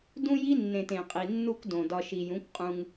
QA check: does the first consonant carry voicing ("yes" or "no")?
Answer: yes